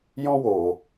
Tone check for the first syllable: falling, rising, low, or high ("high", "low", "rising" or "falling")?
high